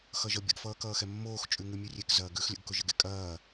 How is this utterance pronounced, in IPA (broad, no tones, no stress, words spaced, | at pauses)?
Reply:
xʌʒʌbʲə̰ɡfʌː kʌːxɛmːoːxt͡ʃʼʉ ŋʉmʲʉrʲek zɐːɡʉx lʲə̰ɡkʊʒəɡḛ kʼɐː